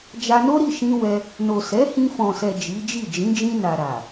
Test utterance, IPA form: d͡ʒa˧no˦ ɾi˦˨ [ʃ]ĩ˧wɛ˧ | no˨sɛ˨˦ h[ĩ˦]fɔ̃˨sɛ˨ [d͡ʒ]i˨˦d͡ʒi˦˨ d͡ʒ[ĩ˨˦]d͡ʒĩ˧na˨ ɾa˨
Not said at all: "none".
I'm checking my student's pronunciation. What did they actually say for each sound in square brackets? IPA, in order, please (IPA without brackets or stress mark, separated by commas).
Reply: ʃ, ĩ˧, d͡ʒ, ĩ˨˦